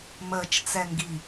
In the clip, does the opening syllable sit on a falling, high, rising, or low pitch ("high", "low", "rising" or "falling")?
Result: low